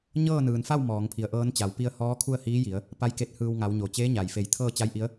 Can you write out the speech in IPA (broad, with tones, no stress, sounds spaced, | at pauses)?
ɲ ɤː˥˨ n ɯː˩ n f a˥˨ w m ɔː˩˧ ŋ pʰ i˩˧ ə̯ ʔ ɤː˧˥ n t͡ɕ a˩˧ w p i˧ ə̯ h ɔː˧˥ kʰ u˥˨ ə̯ h iː˧˥ j i˩˧ ə̯ | p a˧˥ j k e˧ t̚ h ɯː˧ w ŋ a˩˧ w ɲ o˩ t͡ɕ eː˧˥ ɲ a˩ j f e˧˩ j t̪ʰ ɤː˥˨ t͡ɕ a˧˥ j ʔ i˧˥ ə̯